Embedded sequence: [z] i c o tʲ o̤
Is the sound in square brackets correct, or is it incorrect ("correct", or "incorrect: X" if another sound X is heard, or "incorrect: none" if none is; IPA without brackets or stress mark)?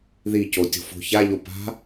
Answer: incorrect: ð